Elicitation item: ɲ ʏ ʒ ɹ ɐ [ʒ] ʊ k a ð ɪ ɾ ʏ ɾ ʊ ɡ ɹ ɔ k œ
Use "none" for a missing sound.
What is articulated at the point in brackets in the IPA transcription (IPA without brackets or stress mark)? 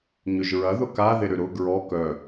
ð